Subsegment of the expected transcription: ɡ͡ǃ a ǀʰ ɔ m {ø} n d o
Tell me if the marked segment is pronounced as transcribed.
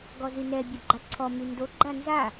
no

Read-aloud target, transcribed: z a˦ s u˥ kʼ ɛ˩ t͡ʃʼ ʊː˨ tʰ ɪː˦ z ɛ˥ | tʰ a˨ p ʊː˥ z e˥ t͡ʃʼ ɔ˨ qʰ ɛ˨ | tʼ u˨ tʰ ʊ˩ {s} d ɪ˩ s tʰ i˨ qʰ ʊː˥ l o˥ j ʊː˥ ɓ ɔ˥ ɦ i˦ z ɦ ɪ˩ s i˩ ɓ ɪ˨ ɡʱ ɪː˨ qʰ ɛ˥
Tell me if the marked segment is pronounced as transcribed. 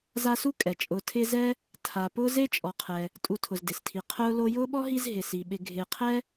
no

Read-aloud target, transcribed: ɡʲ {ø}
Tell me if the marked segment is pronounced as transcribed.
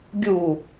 no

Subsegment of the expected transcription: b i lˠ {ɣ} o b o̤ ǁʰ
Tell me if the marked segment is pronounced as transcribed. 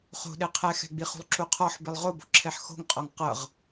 no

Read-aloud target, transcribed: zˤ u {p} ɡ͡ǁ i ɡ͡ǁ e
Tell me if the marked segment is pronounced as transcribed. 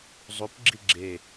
yes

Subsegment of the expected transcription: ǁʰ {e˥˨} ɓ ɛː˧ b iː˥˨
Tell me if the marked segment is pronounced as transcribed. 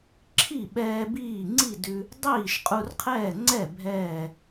no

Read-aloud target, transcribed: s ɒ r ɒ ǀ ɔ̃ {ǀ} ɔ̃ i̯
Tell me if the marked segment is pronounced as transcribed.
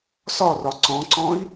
yes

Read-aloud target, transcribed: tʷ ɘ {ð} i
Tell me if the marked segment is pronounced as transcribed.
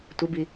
no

